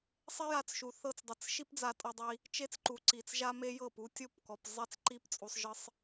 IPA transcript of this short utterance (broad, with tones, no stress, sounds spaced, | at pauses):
sˤ e˦ j a˧ t͡s ʃ u˨ θ ɤ˧ t͡s dˤ ɤ˨ t͡s ʃ i˦ p d͡z a˧ tʼ ɔ˧ dˤ i˧ | t͡ʃ e˦ t͡s ǃ u˨ ǀ i˨ t͡s ʒ a˦ m e˦ j ɤ˦˨ p u˧ tʲ o˦˨ p k ɔ˨ p zˤ e˦ t͡s ǃ i˦ p t͡sʼ u˧ sˤ ʒ ɯ˦ sˤ